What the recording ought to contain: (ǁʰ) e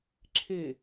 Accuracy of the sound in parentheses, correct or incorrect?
correct